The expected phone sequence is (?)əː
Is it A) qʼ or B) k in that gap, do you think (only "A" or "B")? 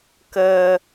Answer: B